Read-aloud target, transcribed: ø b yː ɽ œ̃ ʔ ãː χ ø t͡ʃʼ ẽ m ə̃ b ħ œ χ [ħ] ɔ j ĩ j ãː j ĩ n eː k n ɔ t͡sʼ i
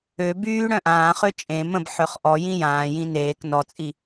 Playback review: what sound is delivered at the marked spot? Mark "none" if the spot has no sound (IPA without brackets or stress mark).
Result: ʔ